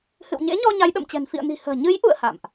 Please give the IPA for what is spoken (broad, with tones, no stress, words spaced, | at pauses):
hɨ̰˧˨wɲḛ˧˥ɲɔ˧ ɲa˨˦jɗə̰˧˨mt͡ɕɛ̤˨˩n fḭ˧˨ə̯ni̤˨˩hə̤ː˨˩ ɲɨ˨˦jʔṵ˧˨ə̯ ha̰˧˨mʔ